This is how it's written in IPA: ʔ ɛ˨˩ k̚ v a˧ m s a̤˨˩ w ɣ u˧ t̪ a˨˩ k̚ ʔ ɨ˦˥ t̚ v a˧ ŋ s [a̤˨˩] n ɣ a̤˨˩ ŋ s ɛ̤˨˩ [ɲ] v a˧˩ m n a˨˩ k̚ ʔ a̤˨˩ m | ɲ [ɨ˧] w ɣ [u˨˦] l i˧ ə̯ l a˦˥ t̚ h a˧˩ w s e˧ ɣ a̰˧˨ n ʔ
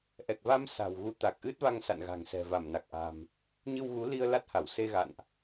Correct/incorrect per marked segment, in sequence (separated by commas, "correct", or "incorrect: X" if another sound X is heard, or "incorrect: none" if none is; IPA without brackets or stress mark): incorrect: a̰˧˨, incorrect: none, correct, correct